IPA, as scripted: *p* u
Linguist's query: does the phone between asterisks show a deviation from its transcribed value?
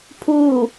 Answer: yes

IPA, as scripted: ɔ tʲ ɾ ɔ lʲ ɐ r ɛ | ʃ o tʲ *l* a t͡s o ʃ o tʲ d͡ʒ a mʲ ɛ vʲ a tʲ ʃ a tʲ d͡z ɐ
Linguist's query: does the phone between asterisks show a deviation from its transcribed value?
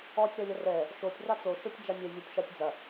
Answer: yes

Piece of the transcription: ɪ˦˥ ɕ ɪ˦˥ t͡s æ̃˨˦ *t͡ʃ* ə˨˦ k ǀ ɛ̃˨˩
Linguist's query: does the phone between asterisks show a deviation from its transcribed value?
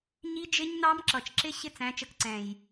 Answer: no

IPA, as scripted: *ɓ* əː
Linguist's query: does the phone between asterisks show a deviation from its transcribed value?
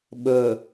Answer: no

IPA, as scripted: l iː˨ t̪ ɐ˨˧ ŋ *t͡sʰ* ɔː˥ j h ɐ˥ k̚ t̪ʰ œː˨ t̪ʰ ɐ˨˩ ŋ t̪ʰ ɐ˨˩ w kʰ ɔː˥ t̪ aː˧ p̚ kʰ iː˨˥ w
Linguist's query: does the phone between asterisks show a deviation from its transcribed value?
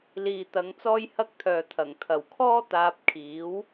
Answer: yes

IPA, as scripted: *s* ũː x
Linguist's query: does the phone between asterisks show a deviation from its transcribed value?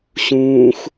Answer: yes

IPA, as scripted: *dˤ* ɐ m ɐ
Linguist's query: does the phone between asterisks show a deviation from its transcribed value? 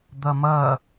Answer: yes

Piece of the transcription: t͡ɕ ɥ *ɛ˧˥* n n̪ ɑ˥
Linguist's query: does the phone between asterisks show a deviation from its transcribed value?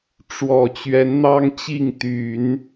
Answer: no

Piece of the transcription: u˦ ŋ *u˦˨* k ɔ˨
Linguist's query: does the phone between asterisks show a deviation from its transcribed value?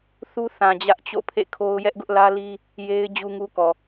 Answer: yes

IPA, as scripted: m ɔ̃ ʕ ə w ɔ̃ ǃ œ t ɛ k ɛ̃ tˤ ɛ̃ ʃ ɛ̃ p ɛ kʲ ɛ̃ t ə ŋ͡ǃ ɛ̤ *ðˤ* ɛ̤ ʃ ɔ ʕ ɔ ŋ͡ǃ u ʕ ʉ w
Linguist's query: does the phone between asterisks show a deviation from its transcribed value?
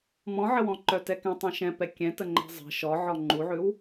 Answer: yes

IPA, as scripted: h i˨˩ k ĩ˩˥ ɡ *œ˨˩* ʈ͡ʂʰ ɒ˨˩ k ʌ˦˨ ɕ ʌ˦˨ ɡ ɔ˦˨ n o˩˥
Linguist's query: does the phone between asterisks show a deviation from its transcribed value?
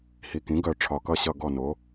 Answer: no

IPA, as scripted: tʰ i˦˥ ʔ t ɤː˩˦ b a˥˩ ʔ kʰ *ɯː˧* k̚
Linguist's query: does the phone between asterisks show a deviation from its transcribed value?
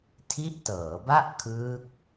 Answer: yes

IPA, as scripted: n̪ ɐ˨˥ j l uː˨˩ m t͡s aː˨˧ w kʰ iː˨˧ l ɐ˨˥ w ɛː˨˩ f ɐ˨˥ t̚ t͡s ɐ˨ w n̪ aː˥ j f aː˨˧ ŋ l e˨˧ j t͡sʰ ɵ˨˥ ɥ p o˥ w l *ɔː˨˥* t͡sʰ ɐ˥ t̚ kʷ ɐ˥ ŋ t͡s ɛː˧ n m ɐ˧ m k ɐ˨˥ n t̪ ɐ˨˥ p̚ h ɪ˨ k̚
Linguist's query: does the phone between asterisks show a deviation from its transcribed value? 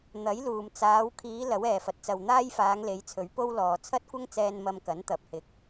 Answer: yes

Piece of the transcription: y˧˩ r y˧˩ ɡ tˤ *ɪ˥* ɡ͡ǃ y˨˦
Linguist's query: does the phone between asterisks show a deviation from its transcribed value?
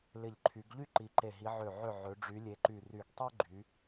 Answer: yes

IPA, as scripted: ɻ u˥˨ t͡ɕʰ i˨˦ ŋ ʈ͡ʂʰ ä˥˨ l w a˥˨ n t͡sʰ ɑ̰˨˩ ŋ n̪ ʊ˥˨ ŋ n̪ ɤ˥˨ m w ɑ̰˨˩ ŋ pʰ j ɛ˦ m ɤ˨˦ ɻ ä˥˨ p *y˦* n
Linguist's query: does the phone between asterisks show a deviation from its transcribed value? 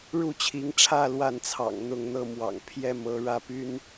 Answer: no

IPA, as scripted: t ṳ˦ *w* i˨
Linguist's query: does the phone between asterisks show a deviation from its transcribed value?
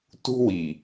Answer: no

